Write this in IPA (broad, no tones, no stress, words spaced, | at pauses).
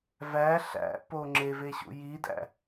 væ ɬæ̰po ŋ͡ǁeveɕṵ jidæ̰